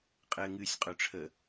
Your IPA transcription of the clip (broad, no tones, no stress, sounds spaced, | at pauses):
qʼ ɘ ŋ ɨ sʲ qʼ ø ʈ͡ʂʰ ə